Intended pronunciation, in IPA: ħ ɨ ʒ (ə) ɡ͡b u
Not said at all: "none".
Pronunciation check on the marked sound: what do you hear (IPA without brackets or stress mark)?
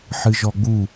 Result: ɔ